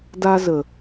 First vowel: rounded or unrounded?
unrounded